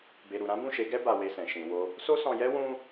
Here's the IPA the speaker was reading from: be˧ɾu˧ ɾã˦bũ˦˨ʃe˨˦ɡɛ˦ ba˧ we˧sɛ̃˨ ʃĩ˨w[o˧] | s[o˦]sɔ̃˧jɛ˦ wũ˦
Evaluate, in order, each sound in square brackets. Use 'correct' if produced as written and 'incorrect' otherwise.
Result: correct, correct

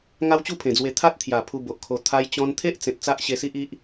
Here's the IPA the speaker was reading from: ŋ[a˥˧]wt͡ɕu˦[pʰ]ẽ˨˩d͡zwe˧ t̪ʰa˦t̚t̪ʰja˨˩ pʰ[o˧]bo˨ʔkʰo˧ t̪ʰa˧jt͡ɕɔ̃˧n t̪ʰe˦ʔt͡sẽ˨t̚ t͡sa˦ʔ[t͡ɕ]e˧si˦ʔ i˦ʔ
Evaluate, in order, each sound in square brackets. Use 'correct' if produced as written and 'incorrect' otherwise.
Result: incorrect: a˦, correct, incorrect: u˧, incorrect: ɕ

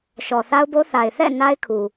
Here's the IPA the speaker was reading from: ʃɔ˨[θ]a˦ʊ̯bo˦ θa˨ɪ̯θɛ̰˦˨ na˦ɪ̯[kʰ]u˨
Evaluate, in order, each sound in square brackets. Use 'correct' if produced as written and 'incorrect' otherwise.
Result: correct, correct

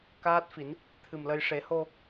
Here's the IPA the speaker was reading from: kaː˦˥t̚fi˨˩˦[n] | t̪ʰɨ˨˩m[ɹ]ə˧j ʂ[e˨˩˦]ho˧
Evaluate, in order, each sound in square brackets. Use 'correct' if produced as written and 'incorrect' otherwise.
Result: correct, incorrect: l, correct

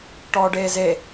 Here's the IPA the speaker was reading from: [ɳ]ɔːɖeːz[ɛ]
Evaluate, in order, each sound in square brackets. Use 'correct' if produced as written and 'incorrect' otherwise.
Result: incorrect: ʈ, incorrect: e

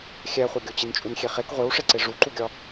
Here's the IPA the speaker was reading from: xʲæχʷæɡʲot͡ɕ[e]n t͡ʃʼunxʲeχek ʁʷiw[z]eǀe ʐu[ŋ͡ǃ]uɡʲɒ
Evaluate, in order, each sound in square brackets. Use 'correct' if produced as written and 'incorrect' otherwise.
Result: incorrect: i, incorrect: ʂ, incorrect: ǃ

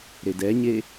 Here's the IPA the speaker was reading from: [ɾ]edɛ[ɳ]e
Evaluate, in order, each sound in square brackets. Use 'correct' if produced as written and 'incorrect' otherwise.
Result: correct, incorrect: ɲ

